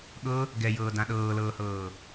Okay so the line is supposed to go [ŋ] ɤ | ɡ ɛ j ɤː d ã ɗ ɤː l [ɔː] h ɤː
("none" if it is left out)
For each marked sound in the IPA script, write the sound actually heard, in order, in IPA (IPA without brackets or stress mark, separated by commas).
ɠ, ɤː